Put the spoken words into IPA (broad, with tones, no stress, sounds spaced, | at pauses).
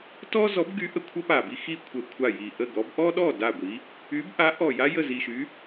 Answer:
t ɔ˥ z ɔ˨˥ b ɡ y˨˥ ʔ ə˧˩ kʷʰ ə˥ p a˧˩ b i˥ x i˥ kʷʰ ə˧˩ kʷʰ a˥˩ j i˧˩ ʔ ə˥˩ ɡ ɔ˨˥ b ʔ ɔ˥ ɗ ɔ˥˩ d a˥˩ ɡʷ i˨˥ | y˨˥ b ʔ a˨˥ ʔ ɔ˧˩ j a˥ j ə˥˩ z i˧˩ ʃ y˨˥